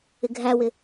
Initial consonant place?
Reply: velar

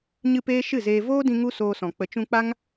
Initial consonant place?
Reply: palatal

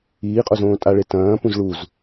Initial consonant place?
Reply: uvular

